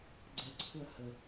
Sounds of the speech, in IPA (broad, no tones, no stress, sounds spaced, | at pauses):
ɡ͡ǀ ɛ ǀʰ ʊ ɐ̯ h ə